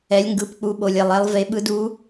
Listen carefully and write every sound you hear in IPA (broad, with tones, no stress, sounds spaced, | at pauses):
ɛ˩˧ lʲ ŋ ɡ ɯ˩˧ p k͡p u˩˧ ɓ o˩ lʲ ɛ˩ lˠ ɛ˩˧ lˠ v e˩˧ ɓ ɯ˩˧ d u˩˧